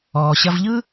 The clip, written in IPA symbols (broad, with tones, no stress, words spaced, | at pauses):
ɔː˩ɕɐ˧vʎɯ˥